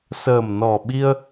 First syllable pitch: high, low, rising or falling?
low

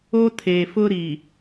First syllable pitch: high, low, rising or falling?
high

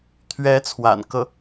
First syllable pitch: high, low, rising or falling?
rising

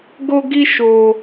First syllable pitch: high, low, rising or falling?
high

